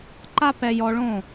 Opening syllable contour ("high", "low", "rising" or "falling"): high